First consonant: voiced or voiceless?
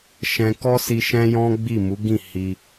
voiceless